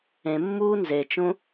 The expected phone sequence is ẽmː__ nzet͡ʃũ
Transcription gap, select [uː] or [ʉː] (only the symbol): uː